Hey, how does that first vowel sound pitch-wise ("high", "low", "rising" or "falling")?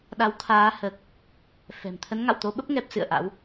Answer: rising